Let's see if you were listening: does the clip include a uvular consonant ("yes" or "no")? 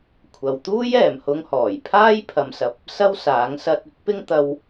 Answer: no